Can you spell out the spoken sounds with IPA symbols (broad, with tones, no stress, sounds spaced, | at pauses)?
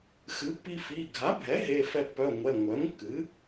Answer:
x ɨ˩˥ pː i˧ f i˩˧˩ ɡʱ a˩˥ bʱ ɛ˩˥ ɦ e˩˧˩ f ɛ˧ pː œ˩˧˩ ŋʷ ɛ˩˧˩ ŋʷ œ˩˥ ŋ kː ɨ˩˥